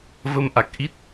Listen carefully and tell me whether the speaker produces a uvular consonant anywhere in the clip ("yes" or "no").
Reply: no